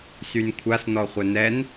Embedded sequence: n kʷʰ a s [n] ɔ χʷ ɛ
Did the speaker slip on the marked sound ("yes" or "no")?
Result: no